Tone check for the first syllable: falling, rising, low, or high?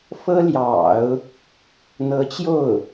high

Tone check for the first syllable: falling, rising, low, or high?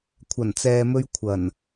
low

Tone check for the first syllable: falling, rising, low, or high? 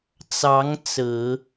rising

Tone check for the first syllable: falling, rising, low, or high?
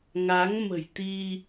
rising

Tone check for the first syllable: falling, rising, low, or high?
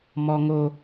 high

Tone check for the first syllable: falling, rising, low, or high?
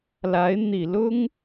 rising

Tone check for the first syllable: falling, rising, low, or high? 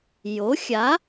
rising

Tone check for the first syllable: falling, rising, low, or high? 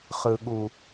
low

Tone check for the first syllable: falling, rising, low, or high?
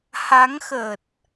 rising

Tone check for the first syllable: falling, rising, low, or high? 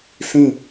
falling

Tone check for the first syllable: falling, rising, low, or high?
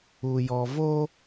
low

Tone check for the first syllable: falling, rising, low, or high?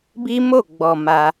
high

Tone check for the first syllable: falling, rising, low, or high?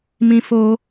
high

